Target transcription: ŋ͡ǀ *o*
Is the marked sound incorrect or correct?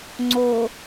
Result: correct